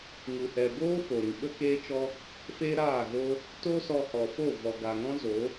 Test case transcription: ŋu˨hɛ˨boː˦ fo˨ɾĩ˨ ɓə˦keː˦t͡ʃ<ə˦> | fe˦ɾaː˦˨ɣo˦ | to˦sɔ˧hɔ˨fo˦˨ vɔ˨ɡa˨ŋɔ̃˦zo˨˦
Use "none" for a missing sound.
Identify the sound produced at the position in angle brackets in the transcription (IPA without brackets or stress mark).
ɔ˦